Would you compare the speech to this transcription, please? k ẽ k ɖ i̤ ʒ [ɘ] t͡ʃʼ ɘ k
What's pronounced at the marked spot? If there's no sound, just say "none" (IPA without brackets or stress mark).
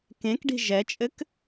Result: ɛ